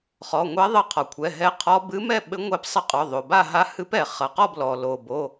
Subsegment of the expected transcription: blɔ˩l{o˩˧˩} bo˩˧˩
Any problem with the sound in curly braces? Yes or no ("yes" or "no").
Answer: yes